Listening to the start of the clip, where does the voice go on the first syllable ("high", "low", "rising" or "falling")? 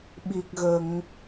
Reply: low